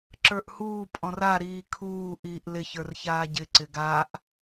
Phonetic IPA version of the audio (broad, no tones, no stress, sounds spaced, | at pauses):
ǁ ə˞ ʔ h uː pʼ ɔ̃ r a ɾ iː kʰ uː ʔ iː ʔ l ɪ ç ə˞ r ç aː ɟ ɪ ǀ ɪ ɡ a ʔ